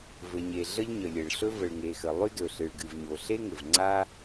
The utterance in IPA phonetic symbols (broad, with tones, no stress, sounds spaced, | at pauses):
v ɘ˩ ɲ e˩ ɮ ə˥ ʎ ɲ ə˩ lʲ ɘ˩ ɭ ɬ ɵ˥ v ə˩ ɭ ŋ e˩ x ə˩ lˠ y˥ d ɵ˩ ɬ ɨ˩ ɭ ɡ ɨ˩ v ɲ o˩ ɬ e˥ ŋ ɘ˩ v ŋ͡ǀ a˥